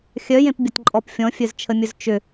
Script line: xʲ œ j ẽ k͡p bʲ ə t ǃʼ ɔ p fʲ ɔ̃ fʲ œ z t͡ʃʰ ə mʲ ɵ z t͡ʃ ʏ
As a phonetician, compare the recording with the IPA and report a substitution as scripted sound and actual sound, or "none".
k͡p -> p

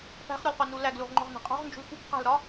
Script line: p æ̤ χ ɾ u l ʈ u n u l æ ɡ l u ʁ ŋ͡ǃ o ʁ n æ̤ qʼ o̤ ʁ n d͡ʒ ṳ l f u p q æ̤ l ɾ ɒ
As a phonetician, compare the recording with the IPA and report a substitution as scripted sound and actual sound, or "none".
ʈ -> q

